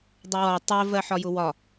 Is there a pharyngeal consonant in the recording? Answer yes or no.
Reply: yes